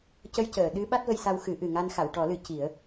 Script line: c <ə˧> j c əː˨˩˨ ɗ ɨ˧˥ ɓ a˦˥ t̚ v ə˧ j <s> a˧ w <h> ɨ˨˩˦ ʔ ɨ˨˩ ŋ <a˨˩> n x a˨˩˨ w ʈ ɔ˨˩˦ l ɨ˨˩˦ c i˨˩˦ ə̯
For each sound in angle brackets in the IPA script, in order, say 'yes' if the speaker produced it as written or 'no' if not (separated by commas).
yes, yes, no, no